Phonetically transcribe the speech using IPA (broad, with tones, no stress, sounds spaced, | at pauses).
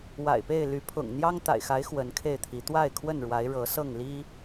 w a̰˨˩ ɪ̯ p e˥˨ ɪ̯ l y˨˦ pʰ ʊ̰˨˩ ŋ n̪ j ɑ˦ ŋ t̪ a̰˨˩ ɪ̯ x a˨˦ ɪ̯ x w ə˨˦ n kʰ e˥˨ ɪ̯ t̪ʰ i˨˦ t̪ w a˥˨ ɪ̯ kʰ w ə˥˨ n ɻ w a˨˦ ɪ̯ ɻ ɤ˨˦ s ɤ˥˨ ŋ l i˦